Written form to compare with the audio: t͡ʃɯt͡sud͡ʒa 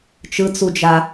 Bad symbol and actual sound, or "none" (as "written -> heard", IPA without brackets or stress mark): none